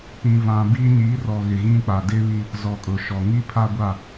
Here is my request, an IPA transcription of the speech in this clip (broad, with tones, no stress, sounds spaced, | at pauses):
p ĩ˨ v ã˨ b i˦ ɲ i˨˦ r ɔ˨ ɣ ɪ˨ ɣ ĩ˦ k͡p a˨ d ɪ˦ β i˦ | z ɔ˨ kʼ ʊ˨ ʃ ɔ˨ ŋ i˦ pʰ a˦ ɡʷ a˦˨